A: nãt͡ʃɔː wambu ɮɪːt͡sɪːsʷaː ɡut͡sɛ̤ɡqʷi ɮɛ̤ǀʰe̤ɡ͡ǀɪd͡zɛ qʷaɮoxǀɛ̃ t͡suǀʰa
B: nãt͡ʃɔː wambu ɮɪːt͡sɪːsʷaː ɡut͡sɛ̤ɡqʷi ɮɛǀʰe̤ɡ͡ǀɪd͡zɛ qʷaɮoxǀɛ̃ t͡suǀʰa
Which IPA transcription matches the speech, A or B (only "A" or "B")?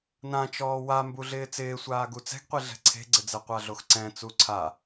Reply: A